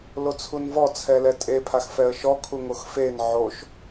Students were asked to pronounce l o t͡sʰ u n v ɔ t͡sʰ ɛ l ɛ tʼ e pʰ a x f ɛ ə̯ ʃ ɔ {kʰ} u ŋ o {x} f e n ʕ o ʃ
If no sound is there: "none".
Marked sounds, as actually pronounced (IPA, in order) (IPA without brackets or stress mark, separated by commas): kʰ, x